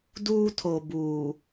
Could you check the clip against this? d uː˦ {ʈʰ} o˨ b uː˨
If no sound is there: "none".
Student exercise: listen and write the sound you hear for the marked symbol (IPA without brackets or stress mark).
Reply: tʰ